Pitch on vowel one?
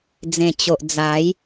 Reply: low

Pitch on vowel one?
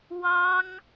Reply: high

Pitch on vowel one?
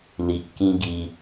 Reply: low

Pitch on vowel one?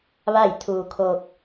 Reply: falling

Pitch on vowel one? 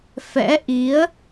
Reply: rising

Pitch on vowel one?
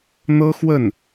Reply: high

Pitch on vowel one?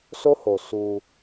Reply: high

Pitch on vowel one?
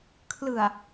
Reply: low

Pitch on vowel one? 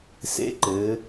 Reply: rising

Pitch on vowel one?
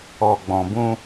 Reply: low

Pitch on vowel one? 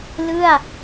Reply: falling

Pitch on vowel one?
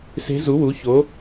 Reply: rising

